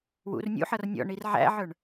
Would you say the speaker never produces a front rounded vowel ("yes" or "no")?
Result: yes